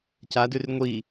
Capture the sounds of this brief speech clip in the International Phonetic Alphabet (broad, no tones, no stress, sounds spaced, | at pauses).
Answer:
c a d ʉ r ŋʷ i